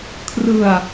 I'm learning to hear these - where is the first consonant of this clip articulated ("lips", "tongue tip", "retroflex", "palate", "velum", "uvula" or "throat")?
velum